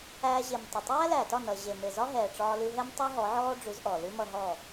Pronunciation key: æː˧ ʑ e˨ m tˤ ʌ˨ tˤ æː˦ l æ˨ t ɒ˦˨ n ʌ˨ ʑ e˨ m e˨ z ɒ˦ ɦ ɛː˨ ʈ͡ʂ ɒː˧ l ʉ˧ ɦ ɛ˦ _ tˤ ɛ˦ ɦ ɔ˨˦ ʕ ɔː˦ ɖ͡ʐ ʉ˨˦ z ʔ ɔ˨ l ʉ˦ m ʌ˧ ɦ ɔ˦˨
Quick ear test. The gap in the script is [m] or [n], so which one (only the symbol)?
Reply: m